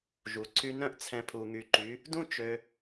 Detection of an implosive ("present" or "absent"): absent